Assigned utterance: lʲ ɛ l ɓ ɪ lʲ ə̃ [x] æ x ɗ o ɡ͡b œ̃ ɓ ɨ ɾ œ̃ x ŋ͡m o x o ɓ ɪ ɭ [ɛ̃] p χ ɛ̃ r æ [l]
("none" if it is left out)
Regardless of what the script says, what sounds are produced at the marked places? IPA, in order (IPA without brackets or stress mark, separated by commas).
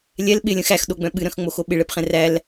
x, ɛ, l